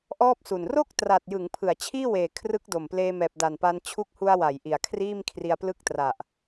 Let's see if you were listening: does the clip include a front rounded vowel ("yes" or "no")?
no